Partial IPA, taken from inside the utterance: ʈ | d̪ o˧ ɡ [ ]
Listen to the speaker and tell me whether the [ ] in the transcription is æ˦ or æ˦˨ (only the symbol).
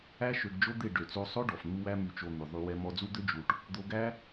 æ˦